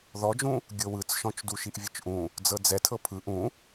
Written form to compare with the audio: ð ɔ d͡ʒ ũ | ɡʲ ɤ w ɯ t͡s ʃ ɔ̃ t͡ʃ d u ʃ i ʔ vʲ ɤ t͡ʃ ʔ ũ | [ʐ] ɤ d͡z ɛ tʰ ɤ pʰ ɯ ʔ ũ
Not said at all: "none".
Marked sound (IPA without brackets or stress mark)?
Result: d͡z